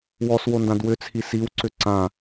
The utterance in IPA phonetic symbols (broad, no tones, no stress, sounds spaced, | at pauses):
w ɔ s w o n d ã d w ʏ t͡sʰ i s i w ǀ ʏ ǀ ã